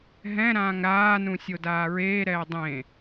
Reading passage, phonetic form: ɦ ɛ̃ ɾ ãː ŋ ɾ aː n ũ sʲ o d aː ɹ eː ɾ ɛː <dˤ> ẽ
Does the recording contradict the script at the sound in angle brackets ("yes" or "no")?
no